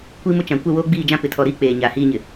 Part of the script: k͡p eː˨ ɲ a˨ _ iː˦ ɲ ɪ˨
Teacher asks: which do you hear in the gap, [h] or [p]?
h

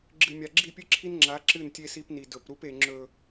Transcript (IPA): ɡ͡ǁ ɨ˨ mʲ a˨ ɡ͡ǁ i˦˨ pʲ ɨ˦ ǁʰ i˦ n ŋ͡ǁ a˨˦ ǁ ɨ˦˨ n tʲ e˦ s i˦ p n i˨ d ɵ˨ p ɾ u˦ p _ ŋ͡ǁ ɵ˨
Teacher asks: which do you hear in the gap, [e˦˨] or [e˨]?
e˨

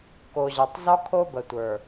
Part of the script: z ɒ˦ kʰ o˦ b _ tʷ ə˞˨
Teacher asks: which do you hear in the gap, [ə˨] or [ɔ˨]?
ə˨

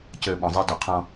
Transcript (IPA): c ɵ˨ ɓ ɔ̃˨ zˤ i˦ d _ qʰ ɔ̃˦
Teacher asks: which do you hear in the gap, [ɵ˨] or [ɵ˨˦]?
ɵ˨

